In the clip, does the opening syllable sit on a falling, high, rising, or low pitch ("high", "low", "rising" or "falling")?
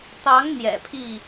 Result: rising